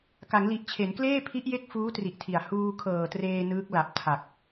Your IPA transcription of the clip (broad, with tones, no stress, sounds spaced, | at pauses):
k a˩˦ ŋ l i˨˩ ʔ t͡ɕʰ e˩˦ n k l eː˥˩ pʰ i˦˥ ʔ j e˦˥ k̚ f uː˦˥ t r i˨˩ ʔ tʰ i˨˩ a̯ h uː˧ kʰ ɤː˨˩ t r eː˧ n ɯː˦˥ k̚ l a˨˩ p̚ tʰ a˨˩ k̚